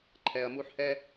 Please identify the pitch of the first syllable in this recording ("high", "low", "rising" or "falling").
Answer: low